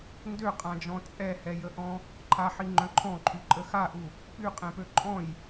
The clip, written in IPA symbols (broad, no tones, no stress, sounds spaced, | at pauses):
n d ø qʼ ã d͡ʒ ɔ̃ t͡sʼ ɛ h ɛ j ə ʔ ɔ̃ | ǃʰ a ħ i ŋ͡ǃ œ̃ ǃʰ ɔ̃ ǃʰ y ǃʼ ə x a ʔ u | p y qʼ ɛ̃ p ø ǃʼ ɔ̃ j